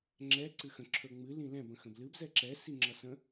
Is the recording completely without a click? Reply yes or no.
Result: no